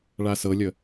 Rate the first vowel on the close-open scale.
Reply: open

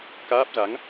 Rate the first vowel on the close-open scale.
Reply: open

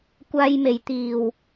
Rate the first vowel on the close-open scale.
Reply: open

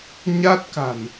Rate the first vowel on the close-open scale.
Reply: open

